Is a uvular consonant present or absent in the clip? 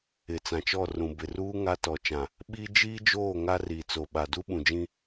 absent